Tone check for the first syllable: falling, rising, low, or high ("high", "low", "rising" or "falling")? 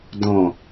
low